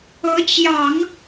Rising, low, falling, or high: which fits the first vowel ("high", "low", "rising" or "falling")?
rising